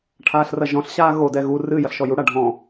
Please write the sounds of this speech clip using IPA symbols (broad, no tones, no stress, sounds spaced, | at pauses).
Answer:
ʈʰ aː ɬ r ɐ ʒ ɔ̃ ɬ ɕ aː ɣ o d ɛ ɣ u r ɨ j ɐ ɬ ʃ ɔ j u ɽ a ɖʱ ɔ̃